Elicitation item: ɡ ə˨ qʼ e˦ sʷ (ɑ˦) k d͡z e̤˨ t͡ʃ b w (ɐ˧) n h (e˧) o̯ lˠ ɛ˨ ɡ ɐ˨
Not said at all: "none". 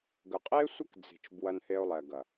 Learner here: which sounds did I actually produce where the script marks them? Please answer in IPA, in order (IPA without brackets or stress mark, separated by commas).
ə˦, ɐ˧, e˧